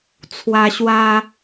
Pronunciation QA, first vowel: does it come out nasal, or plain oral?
oral